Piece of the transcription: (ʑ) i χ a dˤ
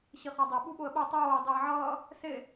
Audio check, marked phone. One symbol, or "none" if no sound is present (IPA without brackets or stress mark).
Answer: ɕ